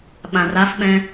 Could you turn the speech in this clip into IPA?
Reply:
ɓ ã r a f ɓ ɛ̃

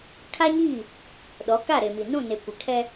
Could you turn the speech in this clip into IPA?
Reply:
kʰ a˦ ɲ iː˦˨ | ɗ ɔ˨˦ k a˦˨ ɾ e˨ m i˨ n ũ˦˨ n e˨ kʷ ɪ˨ kʰ ɛ˦

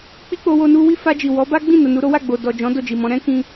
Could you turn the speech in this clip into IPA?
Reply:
k͡p i˦ k͡p o˧ w o˧ n u˧ w i˦ f a˧ d͡ʒ i˨ w ɔ˨˦ b a˦ ɡ͡b ĩ˦˨ n o˨ n u˨˦ ɾ o˦ w a˦˨ ɡ͡b o˨ d ɔ˨ d͡ʒ ɔ̃˨˦ d o˦˨ d͡ʒ i˨ m ɔ̃˨˦ ɾ ɛ̃˦ k ĩ˧

